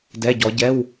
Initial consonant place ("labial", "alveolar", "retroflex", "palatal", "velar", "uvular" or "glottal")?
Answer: alveolar